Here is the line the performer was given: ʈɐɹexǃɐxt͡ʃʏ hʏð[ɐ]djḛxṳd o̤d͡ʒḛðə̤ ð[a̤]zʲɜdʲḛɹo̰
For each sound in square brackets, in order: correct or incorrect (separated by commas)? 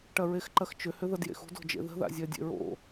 correct, incorrect